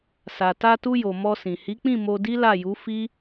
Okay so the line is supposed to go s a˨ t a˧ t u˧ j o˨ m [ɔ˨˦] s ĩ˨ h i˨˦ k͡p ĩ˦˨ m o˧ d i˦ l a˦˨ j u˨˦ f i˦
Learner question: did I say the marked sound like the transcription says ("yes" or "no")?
no